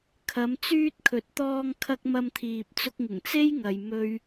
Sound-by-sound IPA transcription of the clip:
kʰ ɐ˨˧ m t͡s yː˧ t̚ kʰ ɵ˨ t̚ t̪ ɔː˧ ŋ kʰ ɐ˧ k̚ m ɐ˧ m t̪ʰ iː˨ p̚ t͡s ʊ˧ k̚ ŋ ɪ˨˩ ŋ t͡s e˥ j ŋ ɐ˨ j m ɵ˥ ɥ

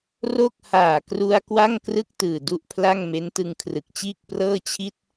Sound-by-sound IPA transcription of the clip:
r o˥˩ k̚ h aː˨˩ k r u˧ a̯ k w a˥˩ ŋ k r ɯ˥˩ k̚ t ɯː˨˩ d u˥˩ ʔ pʰ l a˥˩ ŋ m e˦˥ n t ɯ˧ ŋ kʰ r ɯ˨˩ k̚ t͡ɕ iː˥˩ k̚ p r ɤː˥˩ t͡ɕʰ i˥˩ t̚

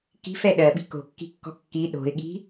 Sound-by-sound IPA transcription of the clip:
k i̤ f ɛ ɗ ɜ ɓ i̤ k o̤ kː i̤ kː ɔ̤ kː i ɗ o̤ ɪ̯ ɠ i̤

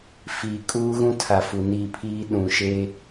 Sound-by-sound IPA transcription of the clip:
f iː˨ kʼ uː˦ ɣ ũ˦ tʰ a˨ f u˨ n i˦˨ pʰ iː˦ ɗ ũ˨ ʃ e˦

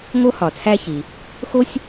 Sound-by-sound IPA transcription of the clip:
ŋ o˥ h ɒ˩ t͡sʰ æ˥ ç i˩ | x o˥ sʲ

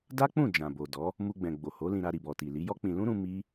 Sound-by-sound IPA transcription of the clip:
d a˦ k͡p ũ˦˨ d͡ʒ ã˨ b o˨ d ɔ˨˦ | m u˧ ɡ͡b ɛ̃˨ ɡ͡b o˨ h o˨˦ l ĩ˧ ɾ a˧ ɾ i˨ b ɔ˨ t i˨ l i˨˦ j ɔ˦ k͡p ĩ˧ l ũ˦ ɾ ũ˧ m i˦

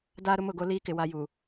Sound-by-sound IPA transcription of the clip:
d aː˦ ɾ ʊ˦ m ʊ˦˨ ɡ o˦ l iː˦ k ɪ˨ w a˦ j u˨

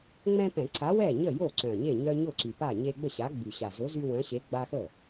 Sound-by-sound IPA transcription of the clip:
ŋ͡m ɛ̃˦ p ɛ̃˧˩˧ ǀ a˨˥ w ɛ˥˩ ɲ ə˥˩ j o˥˩ ǀ œ̃˨˩ ɲ e˥˩ ɲ œ˦ ɲ ʊ˥˩ ǀ y˨˩ p a˥˩ ɲ e˦ ɡ͡b ə˥˩ ɕ a˨˥ ɡ͡b y˨˩ ɕ a˨˩ z ʊ˨˥ z y˦ w œ̃˨˥ ɕ e˨˥ ɡ͡b a˦ x ə˥˩

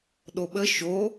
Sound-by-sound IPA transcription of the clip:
ɗ o ɓ ə ʃ o

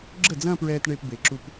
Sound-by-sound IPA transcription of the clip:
ɡ͡ǁ ə˥˩ d͡z ɐ̃˥˧ p ɹ ɛː˧ t ɳ e˧ p b e˨˩ ǁ u˧ p

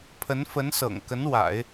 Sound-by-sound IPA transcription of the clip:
pʰ ə˧˥ n f ə˧˥ n s ɤ̰˨˩ ŋ k ə˧˥ n w a̰˨˩˦ ɪ̯

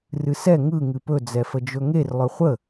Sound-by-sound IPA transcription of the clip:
r ɨ s ɛ ŋ ɯ ŋ ɨ p ɵ d͡z ɛ f ə d͡ʒ ɵ ŋ e r lˠ ɵ χʷ ə

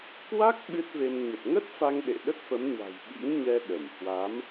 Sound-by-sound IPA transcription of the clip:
k w a˦˥ k̚ ɓ ɨ˦˥ t̚ v e˧ m ɲ ə˨˩ t̚ ŋ ə˦˥ t̚ f a˧ ŋ ɗ ḛ˧˨ ɗ ə˦˥ t̚ f ə˨˦ m ɲ a̤˨˩ j ɓ ḭ˧˥ ŋ ɲ ɛ˧ ɗ ə˧˩ m h w a˨˦ m

